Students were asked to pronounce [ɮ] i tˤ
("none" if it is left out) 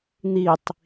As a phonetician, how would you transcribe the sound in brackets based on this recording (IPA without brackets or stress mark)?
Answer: n̪